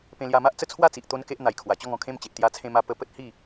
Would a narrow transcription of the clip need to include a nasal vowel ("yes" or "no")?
yes